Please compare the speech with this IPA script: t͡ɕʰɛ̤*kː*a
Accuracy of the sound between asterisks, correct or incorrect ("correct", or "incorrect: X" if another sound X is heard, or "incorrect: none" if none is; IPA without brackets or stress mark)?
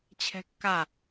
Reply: correct